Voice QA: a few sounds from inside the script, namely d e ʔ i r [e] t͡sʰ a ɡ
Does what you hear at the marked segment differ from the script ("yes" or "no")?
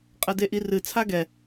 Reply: yes